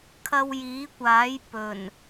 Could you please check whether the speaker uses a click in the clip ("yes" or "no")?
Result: no